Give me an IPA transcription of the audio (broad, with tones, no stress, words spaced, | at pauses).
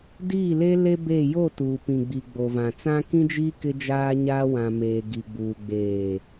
diː˦˨le˦ le˦be˦˨ jo˦˨tuː˨pĩ˨ɡ͡bi˨ ɡ͡bo˨vã˨t͡sã˦ kĩ˦d͡ʒiː˦ kɪ˦d͡ʒaː˦ɲaː˦ wã˨meː˨ ɡi˨ɡ͡buː˨ ɡ͡beː˨